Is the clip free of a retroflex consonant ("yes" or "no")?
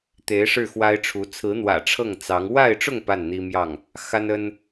no